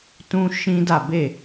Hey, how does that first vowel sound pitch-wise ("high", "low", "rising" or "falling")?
high